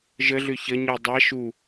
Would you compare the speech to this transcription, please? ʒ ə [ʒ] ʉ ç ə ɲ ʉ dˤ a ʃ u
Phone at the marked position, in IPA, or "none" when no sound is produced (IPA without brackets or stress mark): ɮ